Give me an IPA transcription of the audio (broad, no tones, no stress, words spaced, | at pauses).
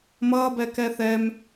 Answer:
mʌːbɛ kɛθɛm